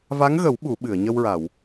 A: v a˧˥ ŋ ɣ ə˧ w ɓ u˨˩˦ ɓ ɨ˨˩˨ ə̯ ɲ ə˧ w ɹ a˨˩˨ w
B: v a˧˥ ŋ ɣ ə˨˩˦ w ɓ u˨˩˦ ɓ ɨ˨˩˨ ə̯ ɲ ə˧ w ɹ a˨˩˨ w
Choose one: B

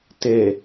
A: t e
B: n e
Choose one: A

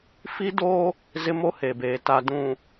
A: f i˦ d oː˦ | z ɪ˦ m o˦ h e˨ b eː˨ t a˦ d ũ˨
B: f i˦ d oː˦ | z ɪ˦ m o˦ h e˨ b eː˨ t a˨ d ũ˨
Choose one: B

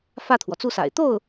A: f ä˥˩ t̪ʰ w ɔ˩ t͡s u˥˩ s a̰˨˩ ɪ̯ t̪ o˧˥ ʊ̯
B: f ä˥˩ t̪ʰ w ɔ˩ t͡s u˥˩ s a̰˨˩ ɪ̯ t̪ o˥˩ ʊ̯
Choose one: B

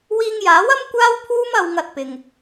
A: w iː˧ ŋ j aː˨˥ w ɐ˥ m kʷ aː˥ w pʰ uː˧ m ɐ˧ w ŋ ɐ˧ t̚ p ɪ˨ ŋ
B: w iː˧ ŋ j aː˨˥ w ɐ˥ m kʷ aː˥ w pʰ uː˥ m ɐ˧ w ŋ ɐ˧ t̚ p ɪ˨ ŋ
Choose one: B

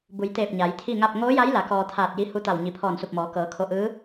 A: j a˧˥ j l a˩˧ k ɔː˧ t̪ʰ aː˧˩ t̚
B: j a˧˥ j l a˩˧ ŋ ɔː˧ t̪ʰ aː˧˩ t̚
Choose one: A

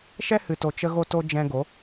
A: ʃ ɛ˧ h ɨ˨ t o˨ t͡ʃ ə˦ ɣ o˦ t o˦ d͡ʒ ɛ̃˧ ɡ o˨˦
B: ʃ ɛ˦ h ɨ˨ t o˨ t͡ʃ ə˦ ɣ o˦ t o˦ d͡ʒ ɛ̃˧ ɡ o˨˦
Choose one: B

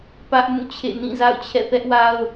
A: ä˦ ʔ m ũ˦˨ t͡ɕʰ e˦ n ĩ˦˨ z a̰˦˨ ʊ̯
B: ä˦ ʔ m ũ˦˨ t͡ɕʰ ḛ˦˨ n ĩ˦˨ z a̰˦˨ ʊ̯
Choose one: B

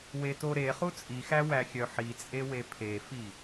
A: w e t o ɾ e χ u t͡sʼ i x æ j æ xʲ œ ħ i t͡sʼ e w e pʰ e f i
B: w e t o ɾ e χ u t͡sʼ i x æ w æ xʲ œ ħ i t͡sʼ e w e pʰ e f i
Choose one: B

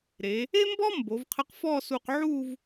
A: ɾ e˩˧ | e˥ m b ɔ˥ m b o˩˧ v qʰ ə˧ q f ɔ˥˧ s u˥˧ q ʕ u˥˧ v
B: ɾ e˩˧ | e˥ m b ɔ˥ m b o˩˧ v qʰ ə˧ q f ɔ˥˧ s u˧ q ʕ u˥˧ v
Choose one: B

